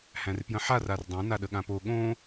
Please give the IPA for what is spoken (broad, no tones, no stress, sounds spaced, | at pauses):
h æ̃ r p j ə̃ ħ a r a r dˤ œ̃ n a ɗ ə ɠ ã p o ɠ õ